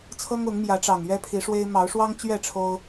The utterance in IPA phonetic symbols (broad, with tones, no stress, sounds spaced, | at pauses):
t͡sʰ ɤ˦ ŋ ʊ˨˦ ŋ m j ä˨˦ ʈ͡ʂ ɑ˨˩ ŋ ɥ ɛ˦ pʰ i˨˦ ʂ w e˦ ɪ̯ m ɑ˨˦ ʊ̯ ʂ w ɑ˦ ŋ t͡ɕ ɥ ɛ˥˨ ʈ͡ʂʰ o˦ ʊ̯